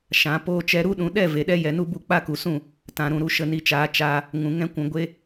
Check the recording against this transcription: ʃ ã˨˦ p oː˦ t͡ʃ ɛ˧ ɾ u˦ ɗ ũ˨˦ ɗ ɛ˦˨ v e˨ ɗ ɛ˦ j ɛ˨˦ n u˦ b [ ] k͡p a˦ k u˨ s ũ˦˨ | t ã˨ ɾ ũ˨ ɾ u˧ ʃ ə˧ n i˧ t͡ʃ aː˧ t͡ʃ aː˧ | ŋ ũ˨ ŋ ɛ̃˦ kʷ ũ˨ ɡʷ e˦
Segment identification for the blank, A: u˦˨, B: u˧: A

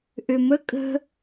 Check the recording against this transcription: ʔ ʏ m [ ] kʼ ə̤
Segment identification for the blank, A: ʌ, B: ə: B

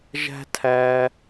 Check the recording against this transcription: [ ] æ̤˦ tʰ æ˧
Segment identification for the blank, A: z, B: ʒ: B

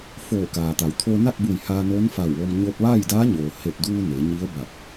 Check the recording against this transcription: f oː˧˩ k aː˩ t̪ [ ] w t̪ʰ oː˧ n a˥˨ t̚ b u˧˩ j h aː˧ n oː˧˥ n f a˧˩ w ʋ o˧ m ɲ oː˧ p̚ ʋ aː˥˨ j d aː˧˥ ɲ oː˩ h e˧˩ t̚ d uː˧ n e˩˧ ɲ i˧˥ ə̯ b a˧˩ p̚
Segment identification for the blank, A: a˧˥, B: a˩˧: B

